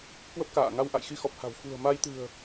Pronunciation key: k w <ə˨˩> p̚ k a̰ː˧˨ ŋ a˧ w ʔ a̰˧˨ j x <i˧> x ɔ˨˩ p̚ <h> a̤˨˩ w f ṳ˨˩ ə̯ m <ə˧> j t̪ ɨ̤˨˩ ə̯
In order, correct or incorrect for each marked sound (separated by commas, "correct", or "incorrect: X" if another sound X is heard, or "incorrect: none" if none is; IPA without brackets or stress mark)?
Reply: incorrect: ə˦˥, correct, correct, incorrect: a˧